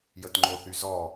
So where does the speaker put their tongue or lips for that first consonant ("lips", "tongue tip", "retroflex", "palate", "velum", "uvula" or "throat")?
palate